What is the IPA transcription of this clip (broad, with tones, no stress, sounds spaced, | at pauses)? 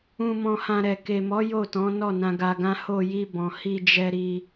ũ˧ m ɔ̃˧ h ã˧ ɾ ɛ˨ k e˨ m ɔ˨˦ j o˦˨ t ɔ̃˨˦ n ɔ˦˨ n ã˧ ɡ a˧ ɡ ã˦ h o˧ j i˧ b ɔ̃˨ h i˧ d͡ʒ ɛ˧ ɾ i˧